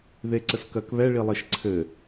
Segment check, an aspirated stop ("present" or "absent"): present